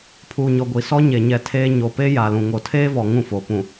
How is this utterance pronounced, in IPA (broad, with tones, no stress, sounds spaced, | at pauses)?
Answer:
pʰ uː˨ ɲ ɔ˨ ɡʷ i˨ s ɔ˦ ɲ e˨ ɲ ɛ˨ tʰ eː˦ ɲ o˨ p e˦ j a˨ l ũ˨ ŋ o˨ tʰ eː˦ v ɔ˨ ŋ ũ˦˨ f o˨ p ũ˨